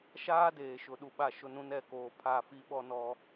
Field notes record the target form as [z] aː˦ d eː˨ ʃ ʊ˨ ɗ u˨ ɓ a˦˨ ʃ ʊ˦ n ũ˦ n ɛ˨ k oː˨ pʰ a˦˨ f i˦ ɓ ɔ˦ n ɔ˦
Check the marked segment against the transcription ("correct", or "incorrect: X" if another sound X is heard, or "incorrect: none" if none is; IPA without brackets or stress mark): incorrect: ʃ